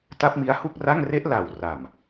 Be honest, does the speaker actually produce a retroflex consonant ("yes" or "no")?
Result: no